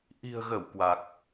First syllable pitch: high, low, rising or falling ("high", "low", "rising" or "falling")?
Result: low